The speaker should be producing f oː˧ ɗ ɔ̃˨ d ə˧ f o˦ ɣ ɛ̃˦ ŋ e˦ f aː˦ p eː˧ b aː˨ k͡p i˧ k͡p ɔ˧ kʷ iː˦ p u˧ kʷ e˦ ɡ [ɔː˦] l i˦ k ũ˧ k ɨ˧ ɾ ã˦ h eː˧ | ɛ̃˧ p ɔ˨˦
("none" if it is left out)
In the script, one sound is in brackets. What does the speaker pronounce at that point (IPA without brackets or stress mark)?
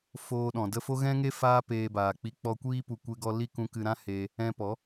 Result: ɔ˦